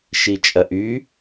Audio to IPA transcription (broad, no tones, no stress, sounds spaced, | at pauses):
ʃ i t͡ʃʼ ɐ ʔ y